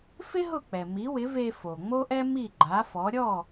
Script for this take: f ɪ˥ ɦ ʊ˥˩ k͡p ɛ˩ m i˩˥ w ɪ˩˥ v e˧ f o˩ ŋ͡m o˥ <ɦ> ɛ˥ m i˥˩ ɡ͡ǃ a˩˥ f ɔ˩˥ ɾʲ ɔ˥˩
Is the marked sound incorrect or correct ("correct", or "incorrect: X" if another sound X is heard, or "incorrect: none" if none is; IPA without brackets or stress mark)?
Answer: incorrect: ʔ